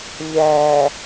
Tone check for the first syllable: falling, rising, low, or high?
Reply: low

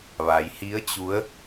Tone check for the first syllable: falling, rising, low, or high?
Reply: low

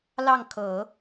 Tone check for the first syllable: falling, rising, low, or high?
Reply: falling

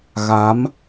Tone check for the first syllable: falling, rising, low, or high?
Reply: rising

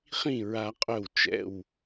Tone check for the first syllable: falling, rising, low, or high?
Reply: falling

